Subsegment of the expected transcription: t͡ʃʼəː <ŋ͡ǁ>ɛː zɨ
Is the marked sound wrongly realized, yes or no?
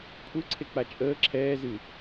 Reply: yes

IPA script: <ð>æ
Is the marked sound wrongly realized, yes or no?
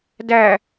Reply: yes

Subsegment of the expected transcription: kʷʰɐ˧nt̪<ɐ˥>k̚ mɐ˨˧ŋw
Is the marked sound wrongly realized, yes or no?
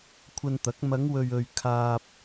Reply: yes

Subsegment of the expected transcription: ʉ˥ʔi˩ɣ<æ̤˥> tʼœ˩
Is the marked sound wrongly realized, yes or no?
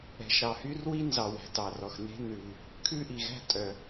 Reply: no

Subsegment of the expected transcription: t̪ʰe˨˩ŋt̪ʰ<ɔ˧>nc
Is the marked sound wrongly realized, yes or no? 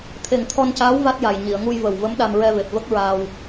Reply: no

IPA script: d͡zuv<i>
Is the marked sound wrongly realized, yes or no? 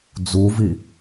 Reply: no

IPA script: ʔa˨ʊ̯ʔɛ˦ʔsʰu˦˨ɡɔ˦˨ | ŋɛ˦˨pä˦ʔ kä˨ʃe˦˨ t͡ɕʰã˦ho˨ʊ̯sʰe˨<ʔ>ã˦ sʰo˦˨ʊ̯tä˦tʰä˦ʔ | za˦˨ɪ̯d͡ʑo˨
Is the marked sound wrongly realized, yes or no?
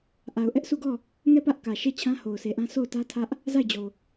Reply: no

